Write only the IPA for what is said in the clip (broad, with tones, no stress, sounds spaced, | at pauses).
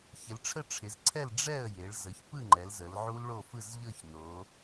ç ɪ˩˧ l ʈ͡ʂʰ ə˥˨ ʈ͡ʂʰ ɪ˩˧ z ǀʰ ɛ˥˨ l ɖ͡ʐ ɛ˥˨ ə̯ j e˩˧ ɭ z ə˩˧ ç p ɯ˥˨ ŋ͡ǃ ɛ˩˧ l z ə˩˧ l ʕ u˦˥ l ɭ o˥˨ f ɯ˥˨ z ʎ ɤ˥˨ ç n o˩˧